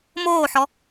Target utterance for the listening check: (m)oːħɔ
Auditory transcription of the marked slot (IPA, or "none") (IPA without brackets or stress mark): m